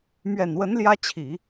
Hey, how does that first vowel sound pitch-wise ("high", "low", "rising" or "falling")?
low